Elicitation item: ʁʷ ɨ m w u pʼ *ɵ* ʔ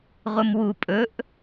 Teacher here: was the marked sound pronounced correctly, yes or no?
yes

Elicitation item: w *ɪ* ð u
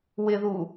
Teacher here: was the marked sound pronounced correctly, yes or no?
yes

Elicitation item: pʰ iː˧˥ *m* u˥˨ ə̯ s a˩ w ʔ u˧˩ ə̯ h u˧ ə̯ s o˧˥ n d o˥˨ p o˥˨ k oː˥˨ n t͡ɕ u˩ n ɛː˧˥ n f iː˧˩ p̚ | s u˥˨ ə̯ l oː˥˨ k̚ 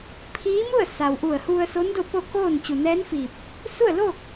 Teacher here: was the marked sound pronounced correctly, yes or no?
yes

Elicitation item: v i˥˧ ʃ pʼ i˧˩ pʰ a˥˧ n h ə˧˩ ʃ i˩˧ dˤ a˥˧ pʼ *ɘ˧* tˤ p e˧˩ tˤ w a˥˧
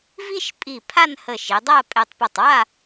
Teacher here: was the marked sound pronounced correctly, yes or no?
no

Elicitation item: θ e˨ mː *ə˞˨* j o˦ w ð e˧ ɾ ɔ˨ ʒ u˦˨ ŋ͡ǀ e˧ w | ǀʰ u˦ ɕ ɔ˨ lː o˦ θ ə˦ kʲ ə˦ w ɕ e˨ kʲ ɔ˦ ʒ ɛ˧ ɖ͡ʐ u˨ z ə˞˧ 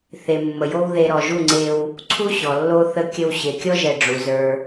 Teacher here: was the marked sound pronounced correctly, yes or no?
no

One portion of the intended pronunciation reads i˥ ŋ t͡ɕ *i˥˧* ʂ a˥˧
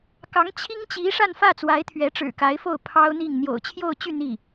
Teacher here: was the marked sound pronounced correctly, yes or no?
no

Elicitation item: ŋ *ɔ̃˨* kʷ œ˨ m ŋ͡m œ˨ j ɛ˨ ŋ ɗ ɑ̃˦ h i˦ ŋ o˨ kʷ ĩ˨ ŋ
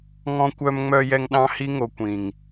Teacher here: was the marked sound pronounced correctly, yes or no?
yes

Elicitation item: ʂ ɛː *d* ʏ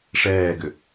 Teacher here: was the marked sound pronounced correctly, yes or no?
no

